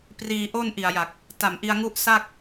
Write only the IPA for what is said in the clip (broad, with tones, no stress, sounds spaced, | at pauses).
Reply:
p r iː˧ ʔ o˥˩ n ʔ i˨˩ a̯ j a˨˩ k̚ | t a˨˩ m ʔ i˧ a̯ ŋ u˦˥ ʔ s a˥˩ k̚